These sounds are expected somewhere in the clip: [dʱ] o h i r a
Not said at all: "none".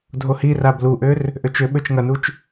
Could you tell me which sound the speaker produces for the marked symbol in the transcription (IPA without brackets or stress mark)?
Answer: dʱ